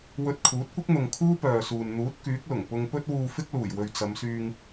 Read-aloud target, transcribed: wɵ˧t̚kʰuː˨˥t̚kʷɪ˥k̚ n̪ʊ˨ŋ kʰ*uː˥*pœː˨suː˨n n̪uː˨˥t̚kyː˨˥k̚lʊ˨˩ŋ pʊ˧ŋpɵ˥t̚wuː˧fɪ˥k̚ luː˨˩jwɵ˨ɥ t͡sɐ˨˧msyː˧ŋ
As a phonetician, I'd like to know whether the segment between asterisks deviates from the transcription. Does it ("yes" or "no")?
no